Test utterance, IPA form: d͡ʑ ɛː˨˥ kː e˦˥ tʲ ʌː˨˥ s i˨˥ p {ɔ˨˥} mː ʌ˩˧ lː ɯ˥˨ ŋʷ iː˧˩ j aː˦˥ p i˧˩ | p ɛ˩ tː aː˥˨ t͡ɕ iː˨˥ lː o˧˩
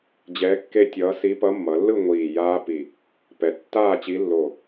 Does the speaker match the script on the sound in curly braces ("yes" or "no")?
no